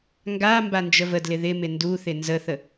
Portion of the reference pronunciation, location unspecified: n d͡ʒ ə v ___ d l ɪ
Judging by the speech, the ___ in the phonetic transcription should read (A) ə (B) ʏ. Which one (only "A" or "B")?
A